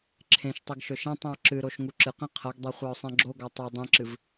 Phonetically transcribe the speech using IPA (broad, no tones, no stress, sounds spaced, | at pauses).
ǁʰ ẽ ʃ tˤ i ɡ ʃ ɵ ʃ ẽ tˤ ĩ ʊ̯ ǁ ɨ ɾ o ʃ ŋ u ǁ ɨ q ĩ qʰ ɐ ɡ dˤ e χʷ a ʊ̯ sˤ ẽ ɡ͡ǁ o ɡ a tˤ o dˤ ĩ ǁ ɨ v